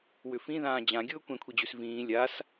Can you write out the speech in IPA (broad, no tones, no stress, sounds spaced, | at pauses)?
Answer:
w ʏ f ĩ ð ãː d͡ʑ ã ɡʲ ʊː kʷ ɛ̃ kʷʰ i d͡ʑ ʉ s v ĩː lʲ a s